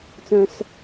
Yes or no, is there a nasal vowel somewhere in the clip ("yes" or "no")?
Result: yes